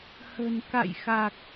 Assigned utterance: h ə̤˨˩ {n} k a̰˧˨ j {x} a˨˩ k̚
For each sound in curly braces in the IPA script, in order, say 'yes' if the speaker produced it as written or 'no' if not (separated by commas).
yes, yes